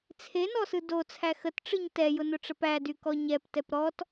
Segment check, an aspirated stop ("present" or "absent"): present